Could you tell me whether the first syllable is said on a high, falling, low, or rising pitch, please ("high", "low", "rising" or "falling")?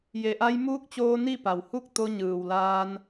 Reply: low